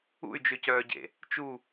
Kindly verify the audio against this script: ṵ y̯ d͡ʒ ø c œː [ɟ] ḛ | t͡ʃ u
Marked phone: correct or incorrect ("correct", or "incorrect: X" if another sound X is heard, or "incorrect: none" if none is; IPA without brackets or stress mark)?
correct